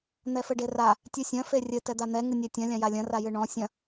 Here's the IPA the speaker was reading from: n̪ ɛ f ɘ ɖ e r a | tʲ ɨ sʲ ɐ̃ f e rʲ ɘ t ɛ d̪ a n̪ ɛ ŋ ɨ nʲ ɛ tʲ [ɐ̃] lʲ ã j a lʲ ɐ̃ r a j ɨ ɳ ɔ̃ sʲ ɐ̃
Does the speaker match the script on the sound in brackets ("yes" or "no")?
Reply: yes